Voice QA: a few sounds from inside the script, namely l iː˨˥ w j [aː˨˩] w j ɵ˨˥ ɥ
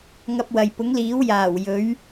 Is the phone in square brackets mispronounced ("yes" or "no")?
no